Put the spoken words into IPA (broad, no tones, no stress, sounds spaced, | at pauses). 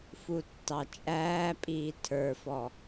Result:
f u tː ɑ t͡ʃʼ æː pʼ iː tʰ ə˞ f ɔ